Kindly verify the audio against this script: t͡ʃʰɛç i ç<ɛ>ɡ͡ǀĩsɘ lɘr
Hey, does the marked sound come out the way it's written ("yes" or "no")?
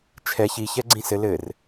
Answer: yes